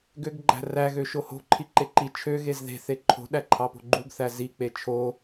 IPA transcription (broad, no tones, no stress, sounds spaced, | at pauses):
ɡ ø ɡ ɡ͡ǃ æ̤ r æ ɣ ø ʃ o h o̤ ǃʰ i ǃ e ǃ i t͡ʃʰ ø ɣ e z ð e̤ θ e ǃʰ o̤ ɗ æ ǃʰ ɑ p o̤ ɡ͡ǃ u ɡ θ æ z i k͡p e t͡ʃʰ o